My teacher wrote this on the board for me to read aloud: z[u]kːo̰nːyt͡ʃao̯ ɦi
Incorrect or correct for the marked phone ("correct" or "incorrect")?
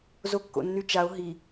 incorrect